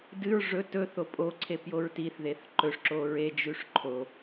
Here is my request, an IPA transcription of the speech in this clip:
d ɨ ɹ ʐ ɵ t ɵ θ o pʼ o ǀʰ e p j o ɹ t i θ ð e θ ǃ ɵ ʂ ǁ o ɹ e d͡ʒ ʉ ʂ ǃʰ o

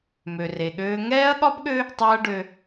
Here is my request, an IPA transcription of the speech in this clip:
m ø˨ r e˨ ɠ øː˦ ŋ ɛː˦ ɐ̯ ɠ ɒ˦ b ɠ ø˦ | tˤ a˦ ɐ̯ ɖ ø˦

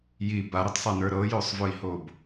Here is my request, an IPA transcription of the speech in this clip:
j i b a ɾ i tˤ sˤ a n ə˞ ɾ ɤ j o sˤ v o i̯ h o b

